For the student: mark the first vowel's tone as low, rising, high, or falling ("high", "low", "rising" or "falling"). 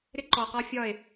high